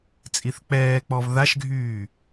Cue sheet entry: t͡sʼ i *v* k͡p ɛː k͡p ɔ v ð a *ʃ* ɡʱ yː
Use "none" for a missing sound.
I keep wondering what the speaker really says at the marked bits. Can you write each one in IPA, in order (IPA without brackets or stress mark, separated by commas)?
θ, ʃ